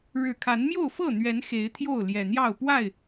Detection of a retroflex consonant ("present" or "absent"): present